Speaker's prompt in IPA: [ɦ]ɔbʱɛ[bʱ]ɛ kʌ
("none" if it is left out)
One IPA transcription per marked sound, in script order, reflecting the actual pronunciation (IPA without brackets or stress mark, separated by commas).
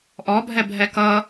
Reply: ʔ, bʱ